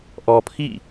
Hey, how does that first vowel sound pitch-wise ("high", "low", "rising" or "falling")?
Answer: low